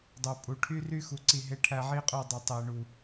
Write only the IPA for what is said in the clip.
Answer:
dˤ ø˨ pʼ u˨ ʈʰ y˦ r y˦ x u˨ ǀ i˦˨ ɦ e˦ ʈʰ æ˦ ʕ i˦ qʼ ø˦˨ dˤ e˨ tˤ e˨ ɳ u˨

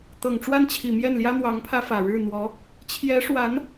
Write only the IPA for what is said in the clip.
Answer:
t̪ ɤ˨˩ ŋ ʈ͡ʂ w a˥˩ n t͡ɕʰ i˨˩ m j ɛ˥˩ n l j ä˥ n̪ w ɑ˧˥ ŋ pʰ ä˥ f ä˨˩ ɻ ɻ̩˥˩ n̪ w ɔ˧˥ | t͡ɕʰ j ɛ˧˥ ʂ w a˧˥ n

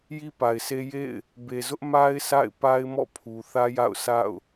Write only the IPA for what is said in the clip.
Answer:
j i˦ p a˨ ɪ̯ sʰ e˦ j ḛ˦˨ ɪ̯ | b e˨ z ʊ˦ ʔ m a˦ ɪ̯ s a̰˦˨ ɪ̯ p a˦ ɪ̯ m ɔ̰˦˨ pʰ u˨ θ ä˦ j a̰˦˨ ʊ̯ sʰ a̰˦˨ ʊ̯

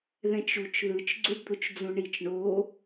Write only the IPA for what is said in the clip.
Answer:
ð ɛ̃ t͡ʃ u t͡ʃ ð ɯ t͡ʃ ɡ͡ǀ u ɖ d̪ o t͡ʃ d͡z ũ ɳ i t͡ʃ ɳ o

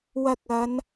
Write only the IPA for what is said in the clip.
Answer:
w ɐ˧ k̚ ɐ˨˧ n

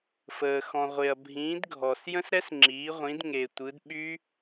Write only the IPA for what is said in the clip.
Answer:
f əː˩ x ɔ̃˩ ʁʷ e˩ ɐ̯ bʱ ĩː˩˧ d ɡʱ ɔ˩ s j ə̃˦˥ s ɾ ɛ˦˥ s ŋ͡ǁ iː˩˧ ʁʷ ĩ˩˧ d ŋ e˩ tʷ ɯ˩˧ d ɓ y˦˥

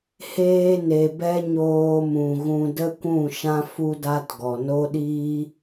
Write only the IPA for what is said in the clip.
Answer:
h eː˧ n e˨ b ɛ˧ ɲ oː˧ m ũ˨ ɣ ũ˧ d ə˦ kʷ ũ˦˨ ʃ ã˦ f u˧ d a˦ t ɡ ɔ˨ n o˦ ɗ iː˦

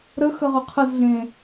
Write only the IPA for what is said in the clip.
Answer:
ɾ ə x ə ʁ ʏ qʰ ə z ɮ ẽ

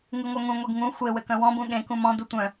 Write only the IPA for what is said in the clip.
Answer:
ŋ ɯ ŋʷ œ ŋ ũ ŋʷ e ɡ ŋ ũ xʷ e w ɘ k œ̃ w ɔ̃ b ũ ɠ ẽ k ũ m ɔ̃ d u tʷ œ̃

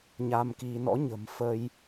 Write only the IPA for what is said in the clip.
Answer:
ɲ a˧ m k i˧ n ɔ̰˧˥ ɲ ə̤˨˩ m f ə˧ j

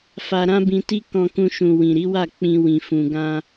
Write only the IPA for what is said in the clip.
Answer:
f a˧ ɾ ã˦ b ĩ˧ t i˦ k ɔ̃˧ k ũ˧ ʃ ũ˨ w ĩ˨ ɾ i˨˦ w a˦˨ k͡p ĩ˧ w ĩ˨ f ũ˨ ɡ ã˧

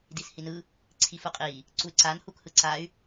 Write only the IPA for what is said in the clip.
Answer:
d i s h i n ɯ | ǀʰ i f u qʼ i | ǀ u y̯ ǀ a n h u k h ɯ ǀ a y̯

